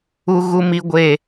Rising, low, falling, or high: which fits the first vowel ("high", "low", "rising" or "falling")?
high